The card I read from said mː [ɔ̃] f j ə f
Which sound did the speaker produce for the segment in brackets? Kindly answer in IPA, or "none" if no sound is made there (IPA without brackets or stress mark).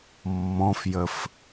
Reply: ɔ̃